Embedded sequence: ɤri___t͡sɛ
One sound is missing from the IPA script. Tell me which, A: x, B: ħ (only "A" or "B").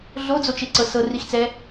A